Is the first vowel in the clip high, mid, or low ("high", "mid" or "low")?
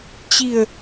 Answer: high